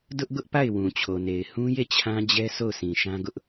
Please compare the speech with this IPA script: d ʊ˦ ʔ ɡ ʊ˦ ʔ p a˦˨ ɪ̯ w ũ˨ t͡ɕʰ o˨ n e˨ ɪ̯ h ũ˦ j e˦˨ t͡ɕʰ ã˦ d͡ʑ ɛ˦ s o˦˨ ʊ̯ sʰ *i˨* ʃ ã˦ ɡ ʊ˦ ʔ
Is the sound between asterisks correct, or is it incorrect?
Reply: incorrect